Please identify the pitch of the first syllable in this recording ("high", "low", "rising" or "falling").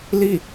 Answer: falling